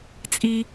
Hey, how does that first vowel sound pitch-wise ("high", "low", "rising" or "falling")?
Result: high